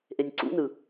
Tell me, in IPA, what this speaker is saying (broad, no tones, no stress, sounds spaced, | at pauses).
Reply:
ʔ e nʲ ǀ ṵ n ɯ